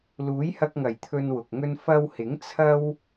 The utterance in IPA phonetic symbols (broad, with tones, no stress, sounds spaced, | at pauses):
l uː˨˥ j h ɐ˧ k̚ ŋ ɐ˨˩ j t̪ʰ ɵ˧ n w ʊ˨ k̚ ŋ ɵ˥ n f ɐ˧ w h ɪ˨˥ ŋ t͡sʰ ɐ˥ w